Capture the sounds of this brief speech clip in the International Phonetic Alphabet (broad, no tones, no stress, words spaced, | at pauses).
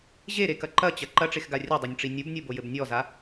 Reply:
ʑeɾekɐ ǃɐt͡ɕɐ ǃɐʈ͡ʂexɡa rʲɐdˤenʲʈ͡ʂi nʲubnʲobojɘb nʲɔza